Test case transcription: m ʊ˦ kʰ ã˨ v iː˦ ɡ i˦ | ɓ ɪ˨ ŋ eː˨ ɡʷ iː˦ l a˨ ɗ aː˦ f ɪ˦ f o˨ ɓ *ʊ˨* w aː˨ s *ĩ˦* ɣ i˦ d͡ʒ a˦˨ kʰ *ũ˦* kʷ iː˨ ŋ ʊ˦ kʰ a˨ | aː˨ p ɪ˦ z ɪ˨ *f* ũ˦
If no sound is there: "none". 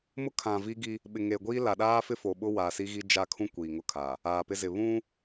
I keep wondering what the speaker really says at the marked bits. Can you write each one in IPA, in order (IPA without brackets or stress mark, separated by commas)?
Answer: ʊ˦, i˦, ũ˦, β